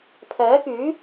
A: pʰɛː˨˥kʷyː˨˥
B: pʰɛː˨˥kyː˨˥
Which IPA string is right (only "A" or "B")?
B